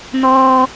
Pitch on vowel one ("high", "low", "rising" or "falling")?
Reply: high